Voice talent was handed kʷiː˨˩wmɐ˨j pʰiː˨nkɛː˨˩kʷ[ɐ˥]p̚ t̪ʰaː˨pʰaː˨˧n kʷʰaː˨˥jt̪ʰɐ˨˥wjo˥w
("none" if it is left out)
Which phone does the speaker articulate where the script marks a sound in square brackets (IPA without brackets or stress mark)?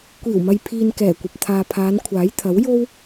ɐ˨